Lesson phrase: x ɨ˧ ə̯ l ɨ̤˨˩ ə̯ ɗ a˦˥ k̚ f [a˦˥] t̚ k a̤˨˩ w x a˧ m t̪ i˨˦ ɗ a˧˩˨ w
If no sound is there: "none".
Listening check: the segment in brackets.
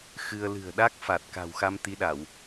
a˨˩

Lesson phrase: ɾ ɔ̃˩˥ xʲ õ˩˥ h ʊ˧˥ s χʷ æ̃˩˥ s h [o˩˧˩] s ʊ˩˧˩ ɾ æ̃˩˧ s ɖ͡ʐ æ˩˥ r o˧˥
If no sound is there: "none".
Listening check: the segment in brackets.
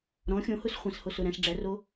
o˩˧˩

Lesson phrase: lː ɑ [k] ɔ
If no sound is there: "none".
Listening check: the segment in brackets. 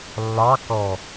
k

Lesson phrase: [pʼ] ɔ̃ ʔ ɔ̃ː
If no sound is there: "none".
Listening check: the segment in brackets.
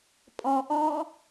pʼ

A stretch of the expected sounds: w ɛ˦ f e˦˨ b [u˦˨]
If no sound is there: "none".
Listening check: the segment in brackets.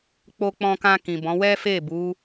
u˨˦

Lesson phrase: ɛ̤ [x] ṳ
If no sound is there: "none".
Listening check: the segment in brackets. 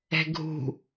ɡʱ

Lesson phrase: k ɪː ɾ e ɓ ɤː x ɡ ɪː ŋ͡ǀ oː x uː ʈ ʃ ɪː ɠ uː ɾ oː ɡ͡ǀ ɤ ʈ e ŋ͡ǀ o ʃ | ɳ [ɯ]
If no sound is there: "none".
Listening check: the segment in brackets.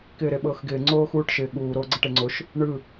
ɯ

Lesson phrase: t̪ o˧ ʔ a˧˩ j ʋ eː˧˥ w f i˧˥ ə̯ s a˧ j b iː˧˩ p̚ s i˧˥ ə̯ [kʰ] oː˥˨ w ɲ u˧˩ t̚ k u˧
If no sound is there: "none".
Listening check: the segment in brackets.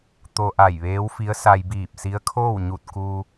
kʰ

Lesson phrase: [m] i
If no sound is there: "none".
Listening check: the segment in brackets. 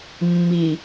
mː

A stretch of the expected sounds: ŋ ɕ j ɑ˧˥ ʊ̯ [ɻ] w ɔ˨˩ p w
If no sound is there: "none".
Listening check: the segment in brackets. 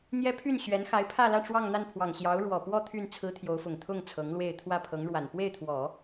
ɻ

